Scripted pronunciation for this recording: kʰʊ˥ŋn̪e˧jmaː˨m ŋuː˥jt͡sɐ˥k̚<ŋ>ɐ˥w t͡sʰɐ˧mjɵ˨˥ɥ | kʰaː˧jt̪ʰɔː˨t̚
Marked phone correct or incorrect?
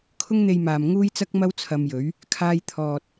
incorrect